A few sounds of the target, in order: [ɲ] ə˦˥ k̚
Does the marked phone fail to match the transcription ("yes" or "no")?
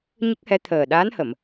no